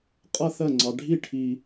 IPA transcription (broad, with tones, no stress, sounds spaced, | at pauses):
qʼ ʌ˥˧ θ ɜ˥˩ ŋ͡ǀ ɑ˨ ɖʱ i˥˩ ʈʰ i˨